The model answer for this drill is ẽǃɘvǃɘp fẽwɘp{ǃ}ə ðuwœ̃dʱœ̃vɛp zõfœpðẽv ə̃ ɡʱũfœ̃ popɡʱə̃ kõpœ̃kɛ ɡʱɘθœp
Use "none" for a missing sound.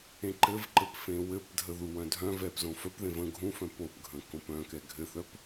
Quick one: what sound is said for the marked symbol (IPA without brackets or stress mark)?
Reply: dʱ